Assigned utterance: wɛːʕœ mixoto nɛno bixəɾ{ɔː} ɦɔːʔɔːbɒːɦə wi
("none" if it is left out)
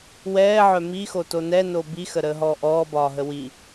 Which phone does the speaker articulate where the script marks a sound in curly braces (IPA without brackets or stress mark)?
əː